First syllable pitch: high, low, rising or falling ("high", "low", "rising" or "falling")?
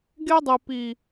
high